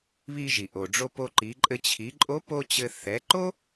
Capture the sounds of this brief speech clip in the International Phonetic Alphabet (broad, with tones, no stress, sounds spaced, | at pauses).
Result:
β i˧ ʒ i˩ ʔ o˩ ɖ͡ʐ o˧ p o˧ ǃ i˩˧ ǃʼ ɘ˧ t͡ɕʰ i˩˧ ǃʼ o˧˥ p o˥ t͡ɕ ɘ˧ θ ɛ˩˧ ǃ o˥